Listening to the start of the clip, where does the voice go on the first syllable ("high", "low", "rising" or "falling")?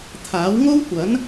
rising